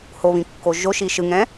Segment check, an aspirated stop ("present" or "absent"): absent